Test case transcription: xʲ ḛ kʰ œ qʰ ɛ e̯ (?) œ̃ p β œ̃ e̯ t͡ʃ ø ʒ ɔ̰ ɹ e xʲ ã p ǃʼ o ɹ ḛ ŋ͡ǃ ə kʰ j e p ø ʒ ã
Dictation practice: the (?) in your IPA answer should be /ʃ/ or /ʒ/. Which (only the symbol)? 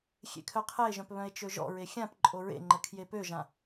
ʒ